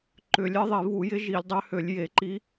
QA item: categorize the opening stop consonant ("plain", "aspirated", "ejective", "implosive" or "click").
click